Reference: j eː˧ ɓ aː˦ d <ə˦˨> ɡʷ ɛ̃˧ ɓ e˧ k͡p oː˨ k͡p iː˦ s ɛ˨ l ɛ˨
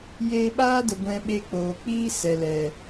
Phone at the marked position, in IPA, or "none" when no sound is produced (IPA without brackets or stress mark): ə˨